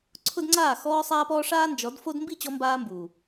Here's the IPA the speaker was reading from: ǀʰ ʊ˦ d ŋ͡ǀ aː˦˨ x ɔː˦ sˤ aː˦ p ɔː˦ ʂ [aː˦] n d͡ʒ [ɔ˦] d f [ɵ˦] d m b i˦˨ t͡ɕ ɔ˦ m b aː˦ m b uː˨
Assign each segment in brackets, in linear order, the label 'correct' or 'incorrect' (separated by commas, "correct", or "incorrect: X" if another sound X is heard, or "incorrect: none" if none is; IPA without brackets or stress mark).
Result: correct, incorrect: ɔ˨˦, incorrect: o˦